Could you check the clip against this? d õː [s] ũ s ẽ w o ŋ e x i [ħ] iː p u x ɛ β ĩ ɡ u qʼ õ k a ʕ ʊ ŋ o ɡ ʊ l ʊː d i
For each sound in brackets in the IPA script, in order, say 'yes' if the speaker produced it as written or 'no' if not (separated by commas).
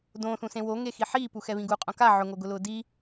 no, yes